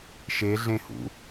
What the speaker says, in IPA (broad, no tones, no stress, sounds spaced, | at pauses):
ʃ e ɮ ẽ h ṵ